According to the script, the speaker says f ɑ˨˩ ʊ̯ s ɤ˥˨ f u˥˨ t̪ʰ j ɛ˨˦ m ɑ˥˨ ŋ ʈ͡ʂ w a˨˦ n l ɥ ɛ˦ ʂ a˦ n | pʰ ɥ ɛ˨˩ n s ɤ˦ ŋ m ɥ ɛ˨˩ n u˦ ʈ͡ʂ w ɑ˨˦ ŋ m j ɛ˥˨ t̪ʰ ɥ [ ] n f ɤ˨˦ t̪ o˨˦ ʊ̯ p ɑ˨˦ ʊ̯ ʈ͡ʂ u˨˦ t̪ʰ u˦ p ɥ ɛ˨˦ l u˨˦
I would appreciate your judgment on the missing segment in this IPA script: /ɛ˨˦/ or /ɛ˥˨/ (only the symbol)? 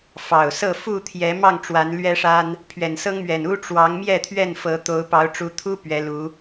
ɛ˥˨